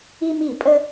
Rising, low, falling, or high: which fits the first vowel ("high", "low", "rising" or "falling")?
high